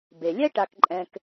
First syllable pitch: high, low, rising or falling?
low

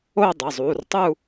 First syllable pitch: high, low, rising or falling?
falling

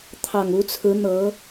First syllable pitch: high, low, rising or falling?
low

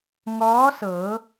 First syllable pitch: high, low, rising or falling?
rising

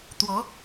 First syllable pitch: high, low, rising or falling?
rising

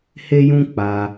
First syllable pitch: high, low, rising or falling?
high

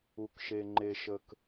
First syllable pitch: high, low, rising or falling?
low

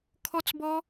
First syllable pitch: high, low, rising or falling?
high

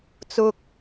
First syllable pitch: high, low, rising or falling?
high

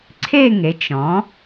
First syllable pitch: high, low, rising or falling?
falling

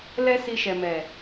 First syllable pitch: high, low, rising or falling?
high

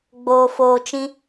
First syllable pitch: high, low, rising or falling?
low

